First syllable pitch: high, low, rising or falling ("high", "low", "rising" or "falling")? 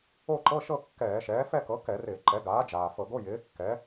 falling